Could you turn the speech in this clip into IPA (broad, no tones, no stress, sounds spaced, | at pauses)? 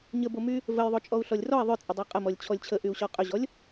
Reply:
ɲ ə b o m y | v ə j ðˤ o t͡ʃʼ ɔ u̯ ɬ ɔ lʲ r ɔ i̯ ðˤ ʏ t͡sʼ ə dˤ o qʼ ə m ɔ lʲ t͡ɕʰ ɔ lʲ t͡ɕʰ ə ʔ y u̯ ɕ ɔ qʼ ʏ ʑ ɔ lʲ